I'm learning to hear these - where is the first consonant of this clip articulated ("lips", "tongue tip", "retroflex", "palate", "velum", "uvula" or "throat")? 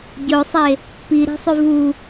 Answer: palate